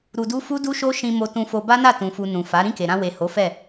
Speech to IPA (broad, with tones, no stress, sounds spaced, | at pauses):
ɾ u˧ d u˦ f u˦ d u˦ ʃ o˦ ʃ ĩ˧ m o˧ t ũ˧ f o˧ b a˦ n a˦˨ t ũ˨ f u˨ n ũ˨ f a˨˦ ɾ ĩ˦˨ k e˨ ɾ ã˧ w e˨ h o˨˦ f ɛ˦˨